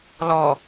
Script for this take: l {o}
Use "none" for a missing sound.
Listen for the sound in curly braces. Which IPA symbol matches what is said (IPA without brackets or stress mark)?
ɔ